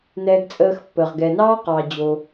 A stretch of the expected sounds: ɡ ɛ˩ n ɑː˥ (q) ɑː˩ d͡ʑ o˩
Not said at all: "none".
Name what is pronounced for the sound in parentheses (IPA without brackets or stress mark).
q